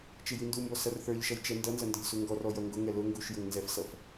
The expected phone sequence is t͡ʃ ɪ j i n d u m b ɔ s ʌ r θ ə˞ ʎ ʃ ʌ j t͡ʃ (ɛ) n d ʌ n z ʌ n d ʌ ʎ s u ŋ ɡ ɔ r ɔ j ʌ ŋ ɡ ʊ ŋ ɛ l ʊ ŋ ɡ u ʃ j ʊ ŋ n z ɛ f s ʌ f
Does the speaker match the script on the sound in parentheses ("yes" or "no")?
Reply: yes